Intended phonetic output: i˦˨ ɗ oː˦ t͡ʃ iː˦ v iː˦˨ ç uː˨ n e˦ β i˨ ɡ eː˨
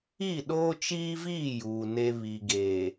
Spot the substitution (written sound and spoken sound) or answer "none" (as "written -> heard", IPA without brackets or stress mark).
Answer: ç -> j